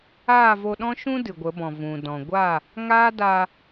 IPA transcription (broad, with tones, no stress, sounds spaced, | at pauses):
aː˦˨ v o˧ ɗ ɔ̃˦ ʃ ũ˦ d ɨ˨ ɡʷ ə˨˦ b ɔ̃˨ v ũ˨ d ɔ̃˨ ɡʷ a˦˨ | ŋ aː˦ d a˧